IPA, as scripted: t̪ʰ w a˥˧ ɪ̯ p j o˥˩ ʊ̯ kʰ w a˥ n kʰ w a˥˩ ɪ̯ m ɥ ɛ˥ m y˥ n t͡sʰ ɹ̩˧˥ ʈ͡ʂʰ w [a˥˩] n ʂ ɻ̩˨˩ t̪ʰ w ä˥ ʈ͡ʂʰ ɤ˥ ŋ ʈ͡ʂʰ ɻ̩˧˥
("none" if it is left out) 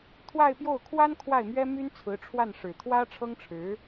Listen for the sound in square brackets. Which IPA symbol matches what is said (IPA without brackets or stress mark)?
a˥˩